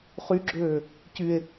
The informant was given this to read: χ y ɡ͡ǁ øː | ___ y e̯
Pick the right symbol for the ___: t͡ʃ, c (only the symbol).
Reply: c